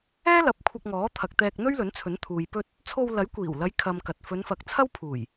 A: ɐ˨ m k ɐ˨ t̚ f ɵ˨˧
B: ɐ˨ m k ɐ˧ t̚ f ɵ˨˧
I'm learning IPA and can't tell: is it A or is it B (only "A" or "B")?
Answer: A